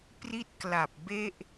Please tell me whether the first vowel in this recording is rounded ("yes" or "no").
no